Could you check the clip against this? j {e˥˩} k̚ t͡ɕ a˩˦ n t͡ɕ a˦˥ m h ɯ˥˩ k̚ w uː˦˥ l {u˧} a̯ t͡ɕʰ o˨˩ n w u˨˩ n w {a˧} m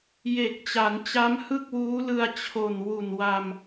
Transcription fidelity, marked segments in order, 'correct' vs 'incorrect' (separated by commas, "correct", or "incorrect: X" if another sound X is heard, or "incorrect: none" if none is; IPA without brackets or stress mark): incorrect: e˨˩, incorrect: ɯ˧, correct